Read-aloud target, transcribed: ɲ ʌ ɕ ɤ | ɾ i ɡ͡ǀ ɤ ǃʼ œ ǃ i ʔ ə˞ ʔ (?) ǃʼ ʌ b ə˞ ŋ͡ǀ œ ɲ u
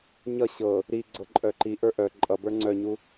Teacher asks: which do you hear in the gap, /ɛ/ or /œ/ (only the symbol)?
œ